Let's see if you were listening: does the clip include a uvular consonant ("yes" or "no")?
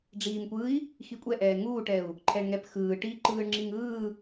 no